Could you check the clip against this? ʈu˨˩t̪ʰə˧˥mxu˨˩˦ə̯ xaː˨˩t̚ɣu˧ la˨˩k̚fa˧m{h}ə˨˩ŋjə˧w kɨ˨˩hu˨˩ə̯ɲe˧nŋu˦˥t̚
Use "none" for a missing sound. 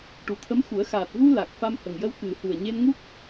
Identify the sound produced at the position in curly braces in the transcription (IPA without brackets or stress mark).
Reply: h